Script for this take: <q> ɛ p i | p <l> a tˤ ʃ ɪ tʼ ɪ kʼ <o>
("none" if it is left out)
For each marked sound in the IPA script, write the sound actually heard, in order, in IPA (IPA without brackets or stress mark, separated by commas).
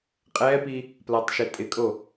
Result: qʼ, l, o